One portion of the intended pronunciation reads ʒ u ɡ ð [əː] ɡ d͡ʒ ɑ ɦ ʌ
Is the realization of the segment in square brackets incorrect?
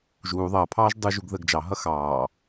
no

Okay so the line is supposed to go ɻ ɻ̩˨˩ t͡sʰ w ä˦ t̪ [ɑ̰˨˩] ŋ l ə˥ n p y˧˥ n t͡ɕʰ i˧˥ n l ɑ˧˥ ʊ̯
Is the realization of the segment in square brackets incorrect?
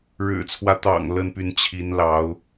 no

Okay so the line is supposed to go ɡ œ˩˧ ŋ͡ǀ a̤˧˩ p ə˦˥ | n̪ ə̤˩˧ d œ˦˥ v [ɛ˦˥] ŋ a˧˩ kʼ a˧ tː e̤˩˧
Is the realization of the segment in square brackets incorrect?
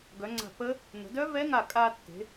no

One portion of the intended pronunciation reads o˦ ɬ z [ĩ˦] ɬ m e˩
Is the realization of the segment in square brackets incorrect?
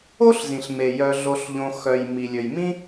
yes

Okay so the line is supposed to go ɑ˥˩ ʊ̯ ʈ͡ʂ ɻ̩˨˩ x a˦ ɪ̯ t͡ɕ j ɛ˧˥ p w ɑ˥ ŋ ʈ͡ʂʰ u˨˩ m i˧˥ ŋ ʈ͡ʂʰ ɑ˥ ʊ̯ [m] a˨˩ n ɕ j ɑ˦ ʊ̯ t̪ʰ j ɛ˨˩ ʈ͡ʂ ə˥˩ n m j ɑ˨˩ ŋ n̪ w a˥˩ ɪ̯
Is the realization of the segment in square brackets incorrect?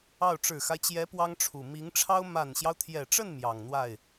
no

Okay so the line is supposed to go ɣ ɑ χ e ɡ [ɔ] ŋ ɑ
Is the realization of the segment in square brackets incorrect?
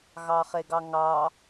yes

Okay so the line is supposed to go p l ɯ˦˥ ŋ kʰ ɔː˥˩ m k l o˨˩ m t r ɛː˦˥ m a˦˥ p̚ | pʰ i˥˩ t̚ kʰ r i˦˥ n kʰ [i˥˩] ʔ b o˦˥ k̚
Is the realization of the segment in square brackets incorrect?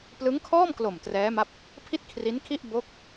no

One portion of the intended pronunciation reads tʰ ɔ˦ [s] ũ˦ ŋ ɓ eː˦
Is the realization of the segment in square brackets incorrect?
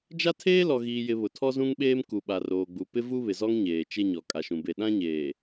yes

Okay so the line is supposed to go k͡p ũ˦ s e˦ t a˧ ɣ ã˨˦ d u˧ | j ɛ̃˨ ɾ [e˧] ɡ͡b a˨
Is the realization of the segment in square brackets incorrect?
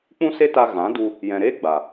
yes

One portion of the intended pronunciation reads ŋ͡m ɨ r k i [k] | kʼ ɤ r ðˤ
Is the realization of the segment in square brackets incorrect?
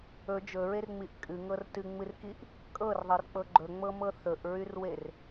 yes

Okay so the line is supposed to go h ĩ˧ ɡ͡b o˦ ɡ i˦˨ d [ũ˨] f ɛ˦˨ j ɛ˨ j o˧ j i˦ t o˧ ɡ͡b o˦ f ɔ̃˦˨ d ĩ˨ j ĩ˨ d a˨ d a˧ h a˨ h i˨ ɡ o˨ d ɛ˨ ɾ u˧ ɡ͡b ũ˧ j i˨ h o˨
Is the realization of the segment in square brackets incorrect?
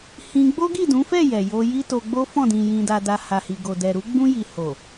yes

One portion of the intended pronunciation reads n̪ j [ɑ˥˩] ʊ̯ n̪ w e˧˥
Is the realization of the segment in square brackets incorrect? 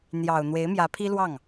yes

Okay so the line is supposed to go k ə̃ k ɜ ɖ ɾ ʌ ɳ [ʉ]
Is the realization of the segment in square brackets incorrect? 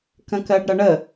yes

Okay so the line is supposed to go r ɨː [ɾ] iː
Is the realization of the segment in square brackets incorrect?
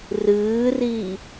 yes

